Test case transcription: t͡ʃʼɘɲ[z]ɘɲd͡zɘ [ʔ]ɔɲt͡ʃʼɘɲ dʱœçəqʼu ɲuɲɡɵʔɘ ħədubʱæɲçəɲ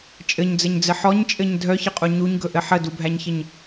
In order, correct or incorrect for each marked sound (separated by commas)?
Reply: incorrect, incorrect